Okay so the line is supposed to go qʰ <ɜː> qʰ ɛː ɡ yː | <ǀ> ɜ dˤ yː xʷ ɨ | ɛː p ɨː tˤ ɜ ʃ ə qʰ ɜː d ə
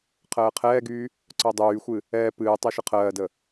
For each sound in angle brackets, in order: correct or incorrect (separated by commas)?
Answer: correct, correct